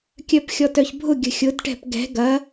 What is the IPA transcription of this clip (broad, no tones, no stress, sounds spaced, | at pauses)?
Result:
kʲ œ p xʲ ɔ t œ ç bʱ ʊ ɡʲ ə̤ xʲ ʊ d ʈ ɛ̤ p ɡ ɛ̤ ɡ ɐ